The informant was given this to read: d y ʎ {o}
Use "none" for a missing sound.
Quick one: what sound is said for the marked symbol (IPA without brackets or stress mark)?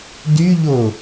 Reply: o